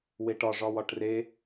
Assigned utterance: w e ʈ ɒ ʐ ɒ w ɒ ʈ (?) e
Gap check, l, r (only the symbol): r